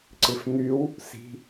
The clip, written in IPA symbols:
ǀɪfn̪yw | si̤

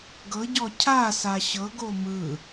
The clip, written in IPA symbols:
ɡɤɟɔ cʰasa ɕɤɡo mɯ

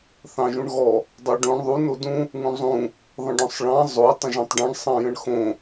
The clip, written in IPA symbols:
θɑ̃ʒũɳɣɔ | dˤɑɖõɳ ðˤu nodũ | ŋũɳzˤũ | ðˤə̃ɖɔ̃sˤɭɑ̃ zˤo tˤə̃ʒɔ̃tˤɖɑ̃ɳ sˤɑ̃jə̃ɳxõ

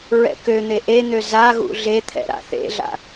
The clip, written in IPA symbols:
ɹɛ̰køn̪e ʔen̪ø zaɣṵ ɮet̪ʰɛ̰ ɾa̰θḛɮa̰

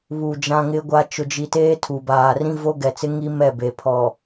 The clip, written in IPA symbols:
βu˨ d͡ʒã˦ŋɪ˦ɡʷa˦ t͡ʃʊ˨d͡ʒi˨teː˦ tʰu˨baː˨ rĩ˦vo˦ɡɛ˨t͡sɪ˦ ŋi˦mɛ˦˨ be˨ pʰɔ˨

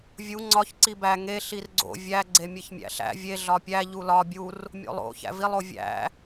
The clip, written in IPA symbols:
vʲu ŋ͡ǀɒç ǀibæ ŋe ɬirɡ͡ǀo̰ vʲæ ɡ͡ǀemʲeçmʲæ̰ɬæ̰ vʲe ɮɒpʲæ ʎulɒ bʲur | mʲo̰lˠo̰ çæ̰vilˠ ovʲæ̰

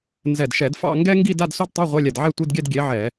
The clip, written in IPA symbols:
nzɛ˧˩dʃɛ˧˩˧dfɑ̰˥˧ ŋɡɛ˥ŋɡi˥˧d a˧˥˧dso˥dtˤe˧˥˧ ʁʷe˧˥˧lʲɛ˧˩d ʕɛ˥˧tʷi˧˥˧dɡʲɛ˥˧d ɡʲe˨˥ʕɛ˧˩˧

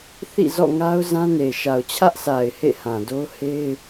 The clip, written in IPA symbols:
θḭ˦˨zɔ̰˦˨ŋa˦ʊ̯ zã˦ne˨ ʃa˨ʊ̯t͡ɕʰä˦ʔsa˨ɪ̯ hḛ˦˨hã˨do˦ʊ̯ he˦ɪ̯

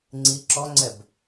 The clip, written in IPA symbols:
ŋ͡ǀi ǁɔŋ͡ǀɛb

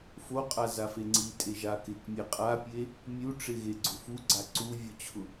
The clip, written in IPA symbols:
foqʼa zafeŋ͡ǀitʼe ʒakɪkmʲe qʼapʲe | mʲuʈ͡ʂɪ ɣeɡ͡ǀʊfuɡ͡ǀa ǀu vʲʊt͡ɕʰʊ

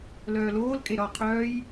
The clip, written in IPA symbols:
lœːloːlkʼe ɾɒ qʰœːj

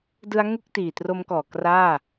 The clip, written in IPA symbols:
dɯ˦˥a̯ŋu˥˩k̚ tiː˨˩tro˦˥mkɔː˨˩ kraː˥˩

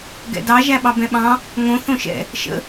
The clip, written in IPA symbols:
ɡɛ̰dɑ ʒæɓɑbɛ̃ɓɑ̃ | ŋõ θõʃɛ̰ | ʃə̰

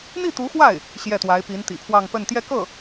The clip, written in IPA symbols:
n̪i˥˩t̪u˧˥xwa˥˩ɪ̯ | ɕjɛ˥˩t̪wa˧˥ɪ̯ pi˧˥nt̪ḭ˨˩pʰwɑ˥˧ŋ pə˥˧n t̪jɛ˥˧kɤ˥˩

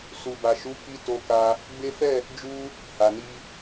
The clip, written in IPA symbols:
su˨ba˨ʃu˨˦ ki˦ to˧ka˧ | ɡ͡be˦ fɛ˦˨ | d͡ʒu˧ | ha˨ni˧

